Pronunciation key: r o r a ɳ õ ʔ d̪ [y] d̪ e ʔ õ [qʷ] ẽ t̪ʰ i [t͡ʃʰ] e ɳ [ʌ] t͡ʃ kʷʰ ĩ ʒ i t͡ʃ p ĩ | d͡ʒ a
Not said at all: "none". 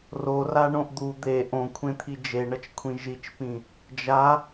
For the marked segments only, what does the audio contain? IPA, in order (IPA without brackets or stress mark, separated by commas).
u, kʷʰ, d͡ʒ, ʌ